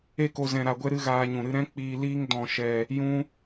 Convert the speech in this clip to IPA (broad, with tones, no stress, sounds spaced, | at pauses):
e˦ k o˧ z ɛ̃˧ ɾ a˧ ɡʷ ɛ˦ ɾ ɨ˦ ɣ aː˧ ɲ ũ˨ ɾ ɨ˧ ɾ ɛ̃˦ k͡p iː˧ l iː˦ ŋ d ɔ̃˨ ʃ ɛ˨ | j ũ˦